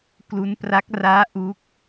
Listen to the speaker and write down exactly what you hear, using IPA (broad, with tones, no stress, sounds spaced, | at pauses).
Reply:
k l u˦˥ n p r a˦˥ k̚ r aː˦˥ ʔ u˦˥ k̚